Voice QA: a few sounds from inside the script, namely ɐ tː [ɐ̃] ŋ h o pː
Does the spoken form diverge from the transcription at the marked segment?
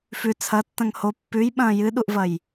no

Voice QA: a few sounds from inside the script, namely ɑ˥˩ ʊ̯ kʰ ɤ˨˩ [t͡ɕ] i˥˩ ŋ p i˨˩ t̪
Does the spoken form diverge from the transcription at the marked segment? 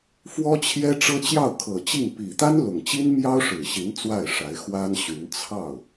no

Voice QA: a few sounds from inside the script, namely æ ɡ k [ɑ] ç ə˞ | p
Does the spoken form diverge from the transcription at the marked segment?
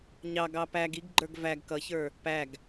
yes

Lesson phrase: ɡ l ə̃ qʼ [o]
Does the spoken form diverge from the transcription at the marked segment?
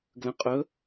yes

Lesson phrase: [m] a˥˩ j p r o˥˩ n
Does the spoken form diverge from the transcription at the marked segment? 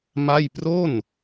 no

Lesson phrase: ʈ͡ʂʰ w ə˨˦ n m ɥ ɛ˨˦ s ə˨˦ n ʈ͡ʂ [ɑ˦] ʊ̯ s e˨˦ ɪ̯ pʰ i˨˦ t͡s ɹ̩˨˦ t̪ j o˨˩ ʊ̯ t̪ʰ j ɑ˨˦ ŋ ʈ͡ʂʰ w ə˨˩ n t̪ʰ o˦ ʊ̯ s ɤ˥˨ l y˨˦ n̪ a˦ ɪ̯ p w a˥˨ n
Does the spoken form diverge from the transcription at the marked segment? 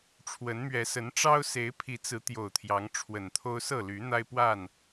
no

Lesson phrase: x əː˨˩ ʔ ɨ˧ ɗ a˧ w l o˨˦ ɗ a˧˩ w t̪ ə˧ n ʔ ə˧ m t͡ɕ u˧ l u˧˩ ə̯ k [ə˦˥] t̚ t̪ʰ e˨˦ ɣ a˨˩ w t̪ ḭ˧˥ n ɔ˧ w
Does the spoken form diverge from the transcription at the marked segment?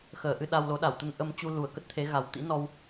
no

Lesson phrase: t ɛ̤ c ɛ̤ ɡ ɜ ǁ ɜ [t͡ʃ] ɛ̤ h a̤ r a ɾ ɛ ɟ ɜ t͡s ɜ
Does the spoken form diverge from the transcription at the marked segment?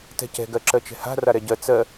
no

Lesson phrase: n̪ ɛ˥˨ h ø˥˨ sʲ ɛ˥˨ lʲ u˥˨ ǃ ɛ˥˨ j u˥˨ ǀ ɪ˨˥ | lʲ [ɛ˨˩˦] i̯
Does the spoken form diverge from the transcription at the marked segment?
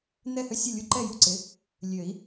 yes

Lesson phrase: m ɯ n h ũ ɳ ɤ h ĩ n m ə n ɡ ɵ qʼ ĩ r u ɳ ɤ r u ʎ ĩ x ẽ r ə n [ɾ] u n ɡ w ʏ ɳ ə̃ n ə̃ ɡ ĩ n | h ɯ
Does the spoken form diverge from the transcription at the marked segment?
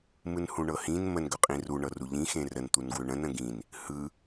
yes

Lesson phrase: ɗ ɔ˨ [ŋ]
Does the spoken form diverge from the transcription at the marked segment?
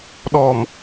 yes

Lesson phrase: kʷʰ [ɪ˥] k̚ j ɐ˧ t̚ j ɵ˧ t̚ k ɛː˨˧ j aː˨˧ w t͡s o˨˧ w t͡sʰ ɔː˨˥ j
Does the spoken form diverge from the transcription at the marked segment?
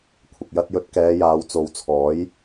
yes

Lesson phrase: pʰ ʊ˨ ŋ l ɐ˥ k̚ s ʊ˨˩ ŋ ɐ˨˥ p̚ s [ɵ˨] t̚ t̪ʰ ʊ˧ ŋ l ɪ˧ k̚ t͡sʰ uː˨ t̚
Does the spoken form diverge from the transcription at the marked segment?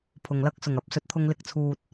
no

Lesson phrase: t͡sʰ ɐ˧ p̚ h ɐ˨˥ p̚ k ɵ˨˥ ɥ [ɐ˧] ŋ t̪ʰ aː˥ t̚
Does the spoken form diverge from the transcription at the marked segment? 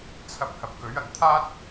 yes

